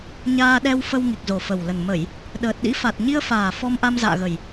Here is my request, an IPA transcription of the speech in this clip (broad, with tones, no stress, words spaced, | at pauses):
ɲaː˧ɗɛ˧wfə˧w ŋi˨˩k̚zo˨˩fə˨˩wlə˨˩n mə˧˩˨j | ɗəː˨˩t̚ɗḭ˧˥fa˨˩t̚ ɲi˧ə̯faː˨˩ fɔ˧mʔa˧mza̰ː˧˨ɣə˨˩j